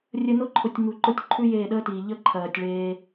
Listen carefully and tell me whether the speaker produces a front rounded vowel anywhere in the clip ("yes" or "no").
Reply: no